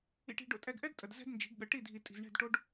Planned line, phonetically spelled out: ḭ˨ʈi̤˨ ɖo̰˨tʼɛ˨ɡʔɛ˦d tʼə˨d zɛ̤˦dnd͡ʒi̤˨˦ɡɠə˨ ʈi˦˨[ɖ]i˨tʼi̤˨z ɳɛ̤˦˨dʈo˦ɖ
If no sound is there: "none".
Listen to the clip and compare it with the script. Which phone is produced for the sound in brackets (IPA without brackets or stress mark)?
dʱ